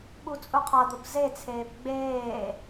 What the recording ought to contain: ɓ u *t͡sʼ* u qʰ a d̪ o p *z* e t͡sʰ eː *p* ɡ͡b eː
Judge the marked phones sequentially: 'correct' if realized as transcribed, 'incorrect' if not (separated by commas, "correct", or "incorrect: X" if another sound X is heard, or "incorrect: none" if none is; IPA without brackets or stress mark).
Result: correct, correct, correct